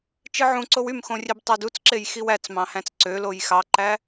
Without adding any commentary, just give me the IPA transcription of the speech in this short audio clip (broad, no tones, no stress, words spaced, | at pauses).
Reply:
t͡ʃɯʕũǀow ymxõrʲeb tˤædut͡sǁej xiwæt͡smɑ̃hæ̃t͡s ǀø lojxɑǃæ